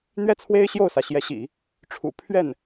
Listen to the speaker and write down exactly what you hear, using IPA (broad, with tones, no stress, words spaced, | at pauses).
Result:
n̪ɥɛ˥˩t͡sʰwe˥ɪ̯ ɕjo˥˩ʊ̯sä˩ɕjɛ˧˥ɕḭ˨˩˦ | ʈ͡ʂʰṵ˨˩pʰɥɛ˥˩n